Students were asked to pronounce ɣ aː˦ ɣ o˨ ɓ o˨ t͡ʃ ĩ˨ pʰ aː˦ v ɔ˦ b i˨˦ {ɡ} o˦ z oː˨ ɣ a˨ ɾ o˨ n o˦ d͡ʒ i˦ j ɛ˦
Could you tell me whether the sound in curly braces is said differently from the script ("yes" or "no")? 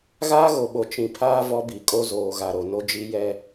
yes